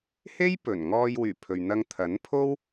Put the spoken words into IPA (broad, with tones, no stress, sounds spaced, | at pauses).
h e˥ j p ɵ˨˩ n ŋ ɔː˧ j w yː˨˩ pʰ ɵ˨ ɥ n̪ ɐ˧ ŋ t̪ʰ ɐ˨˥ n pʰ o˥ w